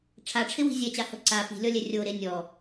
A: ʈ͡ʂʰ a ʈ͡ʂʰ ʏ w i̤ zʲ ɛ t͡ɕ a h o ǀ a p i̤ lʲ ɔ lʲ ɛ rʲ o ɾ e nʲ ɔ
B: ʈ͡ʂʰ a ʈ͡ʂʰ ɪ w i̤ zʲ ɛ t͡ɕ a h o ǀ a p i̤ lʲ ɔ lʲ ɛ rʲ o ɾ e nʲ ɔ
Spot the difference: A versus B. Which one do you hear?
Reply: B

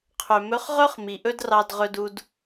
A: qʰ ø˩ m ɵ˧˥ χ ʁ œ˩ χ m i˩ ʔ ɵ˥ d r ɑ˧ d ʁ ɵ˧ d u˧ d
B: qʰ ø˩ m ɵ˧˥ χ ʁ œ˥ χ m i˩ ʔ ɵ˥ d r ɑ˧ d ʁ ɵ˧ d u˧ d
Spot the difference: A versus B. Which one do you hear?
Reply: B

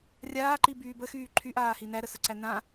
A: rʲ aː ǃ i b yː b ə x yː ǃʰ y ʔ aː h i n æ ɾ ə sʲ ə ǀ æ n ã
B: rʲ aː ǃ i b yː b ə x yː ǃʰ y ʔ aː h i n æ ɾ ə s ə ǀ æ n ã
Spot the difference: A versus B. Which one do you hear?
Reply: B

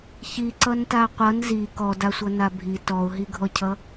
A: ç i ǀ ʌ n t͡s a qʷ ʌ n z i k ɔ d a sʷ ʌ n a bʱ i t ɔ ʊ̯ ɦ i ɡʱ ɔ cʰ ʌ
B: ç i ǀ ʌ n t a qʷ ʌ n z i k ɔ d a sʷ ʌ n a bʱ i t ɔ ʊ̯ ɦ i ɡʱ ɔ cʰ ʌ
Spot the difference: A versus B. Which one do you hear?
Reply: B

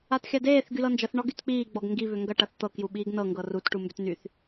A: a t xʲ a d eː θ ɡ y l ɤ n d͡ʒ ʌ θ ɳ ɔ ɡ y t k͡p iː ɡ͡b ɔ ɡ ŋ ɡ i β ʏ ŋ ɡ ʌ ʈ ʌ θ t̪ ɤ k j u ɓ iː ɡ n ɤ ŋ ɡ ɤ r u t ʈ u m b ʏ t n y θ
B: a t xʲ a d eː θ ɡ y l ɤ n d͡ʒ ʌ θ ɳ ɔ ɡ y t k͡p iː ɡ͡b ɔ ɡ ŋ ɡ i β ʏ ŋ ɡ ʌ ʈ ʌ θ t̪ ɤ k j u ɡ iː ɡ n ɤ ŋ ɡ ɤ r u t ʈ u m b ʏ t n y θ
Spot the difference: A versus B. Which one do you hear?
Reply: A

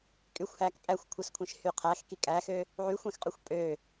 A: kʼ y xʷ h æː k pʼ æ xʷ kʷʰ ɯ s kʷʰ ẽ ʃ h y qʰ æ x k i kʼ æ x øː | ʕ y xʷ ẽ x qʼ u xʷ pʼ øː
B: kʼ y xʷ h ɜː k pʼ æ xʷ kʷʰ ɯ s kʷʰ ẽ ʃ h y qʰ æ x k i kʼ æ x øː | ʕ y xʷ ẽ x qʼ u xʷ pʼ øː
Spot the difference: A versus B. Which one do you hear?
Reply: A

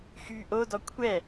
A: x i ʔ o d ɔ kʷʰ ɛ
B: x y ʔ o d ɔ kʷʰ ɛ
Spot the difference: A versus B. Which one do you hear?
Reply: B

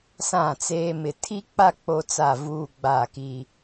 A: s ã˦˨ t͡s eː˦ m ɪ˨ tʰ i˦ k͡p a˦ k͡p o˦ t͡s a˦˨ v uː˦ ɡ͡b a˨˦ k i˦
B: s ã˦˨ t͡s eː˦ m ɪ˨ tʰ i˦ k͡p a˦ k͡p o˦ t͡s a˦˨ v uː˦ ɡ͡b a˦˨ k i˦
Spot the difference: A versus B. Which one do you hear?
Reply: B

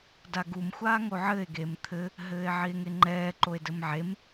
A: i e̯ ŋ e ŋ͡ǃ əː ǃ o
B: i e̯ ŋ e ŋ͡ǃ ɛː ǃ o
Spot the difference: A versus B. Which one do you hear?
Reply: B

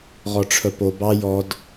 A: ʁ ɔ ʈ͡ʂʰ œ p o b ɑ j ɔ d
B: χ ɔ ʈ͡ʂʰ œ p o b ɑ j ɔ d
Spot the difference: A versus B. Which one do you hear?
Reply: A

